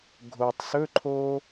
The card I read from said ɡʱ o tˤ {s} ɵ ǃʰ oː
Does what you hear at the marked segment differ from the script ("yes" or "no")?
no